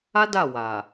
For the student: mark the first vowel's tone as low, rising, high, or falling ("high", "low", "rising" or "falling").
high